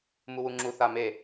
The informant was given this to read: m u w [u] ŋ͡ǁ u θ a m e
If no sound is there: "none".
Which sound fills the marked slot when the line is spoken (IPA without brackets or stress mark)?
u